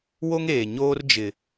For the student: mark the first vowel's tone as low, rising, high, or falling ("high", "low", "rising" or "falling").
high